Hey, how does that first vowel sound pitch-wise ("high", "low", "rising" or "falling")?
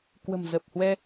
low